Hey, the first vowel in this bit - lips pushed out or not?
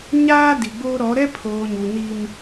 no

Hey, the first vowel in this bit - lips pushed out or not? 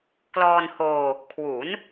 yes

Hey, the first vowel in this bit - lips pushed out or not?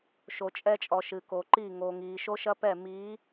yes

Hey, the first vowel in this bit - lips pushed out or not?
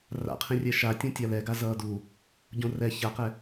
no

